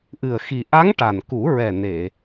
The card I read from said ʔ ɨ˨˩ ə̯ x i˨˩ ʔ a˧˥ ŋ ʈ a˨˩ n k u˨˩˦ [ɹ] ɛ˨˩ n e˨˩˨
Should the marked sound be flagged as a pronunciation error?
no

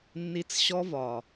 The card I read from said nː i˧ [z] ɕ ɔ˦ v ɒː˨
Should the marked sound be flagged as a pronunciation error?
yes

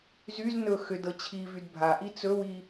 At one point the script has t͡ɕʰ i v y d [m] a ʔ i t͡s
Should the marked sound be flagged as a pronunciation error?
yes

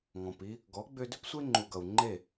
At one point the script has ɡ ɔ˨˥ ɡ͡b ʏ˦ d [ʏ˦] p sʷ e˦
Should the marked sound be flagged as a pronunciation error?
no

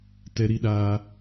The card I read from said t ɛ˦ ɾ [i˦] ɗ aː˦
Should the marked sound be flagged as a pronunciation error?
no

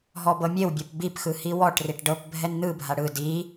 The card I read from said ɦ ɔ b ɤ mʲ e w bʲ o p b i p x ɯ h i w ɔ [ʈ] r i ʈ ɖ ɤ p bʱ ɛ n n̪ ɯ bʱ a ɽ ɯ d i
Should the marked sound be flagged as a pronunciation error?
no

